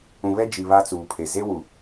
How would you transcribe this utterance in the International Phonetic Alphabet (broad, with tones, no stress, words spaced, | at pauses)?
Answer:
ũ˨βɛ˦ d͡ʒi˨ βa˦t͡suː˨pʰe˨ ze˦wu˨